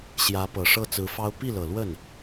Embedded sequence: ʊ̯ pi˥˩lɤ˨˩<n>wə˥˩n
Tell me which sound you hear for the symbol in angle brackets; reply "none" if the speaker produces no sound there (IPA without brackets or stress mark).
l